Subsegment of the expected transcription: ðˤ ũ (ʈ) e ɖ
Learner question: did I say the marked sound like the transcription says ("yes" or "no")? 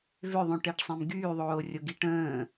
yes